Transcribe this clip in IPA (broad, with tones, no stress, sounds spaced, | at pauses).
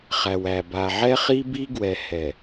χ æ˨ w æ˨ b a˨ ʕ ɛ˦ χ i˦ b i˦ ɡ w ɛ˨ h ɛ˨